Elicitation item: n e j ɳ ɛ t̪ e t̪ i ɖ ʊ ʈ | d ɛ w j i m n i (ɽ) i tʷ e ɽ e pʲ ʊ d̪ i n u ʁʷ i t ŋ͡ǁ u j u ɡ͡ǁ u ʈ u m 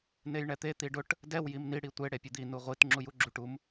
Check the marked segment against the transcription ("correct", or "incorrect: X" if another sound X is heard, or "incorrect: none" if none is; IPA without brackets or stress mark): correct